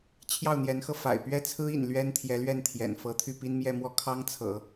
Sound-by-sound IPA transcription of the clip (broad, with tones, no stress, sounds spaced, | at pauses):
t͡ɕʰ j ɑ˥˩ ʊ̯ n̪ j ɛ˧˥ n x ɤ˧ f a̰˨˩ ɪ̯ p ɥ ɛ˥ t͡sʰ ɹ̩˥ ḭ˨˩ n l ɥ ɛ˥ n t̪ʰ j ɛ˧˥ l ɥ ɛ˥˩ n t̪ʰ j ɛ̰˨˩ n f ɤ˧˥ t̪ʰ y˥˩ p i˥ n m j ɛ˥˧ m w ɔ˥˩ kʰ ɑ˥ ŋ t͡sʰ ɤ̰˨˩˦